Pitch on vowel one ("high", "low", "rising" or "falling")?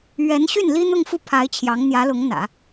rising